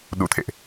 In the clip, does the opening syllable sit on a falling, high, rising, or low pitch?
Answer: rising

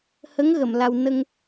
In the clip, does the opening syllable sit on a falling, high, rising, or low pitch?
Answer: rising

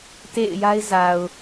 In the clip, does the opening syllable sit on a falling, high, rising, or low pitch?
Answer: falling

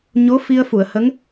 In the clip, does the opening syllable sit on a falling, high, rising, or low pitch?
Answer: rising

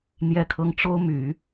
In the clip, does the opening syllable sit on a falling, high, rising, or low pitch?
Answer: high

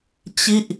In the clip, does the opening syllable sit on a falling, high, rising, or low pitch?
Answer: falling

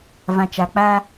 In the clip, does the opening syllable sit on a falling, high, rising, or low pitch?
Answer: low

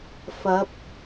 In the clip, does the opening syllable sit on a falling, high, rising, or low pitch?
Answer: rising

